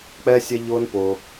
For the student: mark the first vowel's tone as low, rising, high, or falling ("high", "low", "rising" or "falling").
high